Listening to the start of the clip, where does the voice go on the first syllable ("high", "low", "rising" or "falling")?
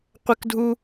high